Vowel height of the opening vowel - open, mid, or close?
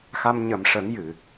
open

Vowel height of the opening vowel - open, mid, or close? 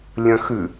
open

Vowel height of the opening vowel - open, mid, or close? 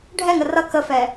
mid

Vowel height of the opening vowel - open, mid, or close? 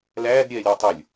open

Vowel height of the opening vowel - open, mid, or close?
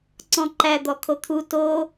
mid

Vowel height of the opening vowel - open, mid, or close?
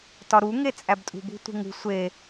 open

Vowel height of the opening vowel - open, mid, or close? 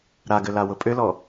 open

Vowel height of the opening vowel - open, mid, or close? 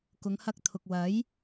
close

